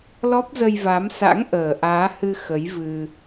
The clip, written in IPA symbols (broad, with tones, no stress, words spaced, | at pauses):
lɔ˦˥p̚zə˧jva˨˦msa̰˧˥ŋ ʔəː˨˩ʔaː˨˦ hɨ˧ xə˨˦jvɨ˧